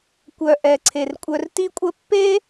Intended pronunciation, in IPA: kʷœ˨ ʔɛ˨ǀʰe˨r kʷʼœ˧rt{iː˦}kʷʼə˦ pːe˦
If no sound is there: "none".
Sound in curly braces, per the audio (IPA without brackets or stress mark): i˦